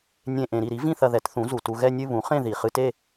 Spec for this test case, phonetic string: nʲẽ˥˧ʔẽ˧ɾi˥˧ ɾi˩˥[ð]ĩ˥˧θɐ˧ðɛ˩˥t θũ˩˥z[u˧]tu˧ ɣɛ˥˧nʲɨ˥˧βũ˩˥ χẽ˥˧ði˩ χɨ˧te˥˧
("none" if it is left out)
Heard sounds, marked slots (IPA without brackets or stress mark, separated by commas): v, u˩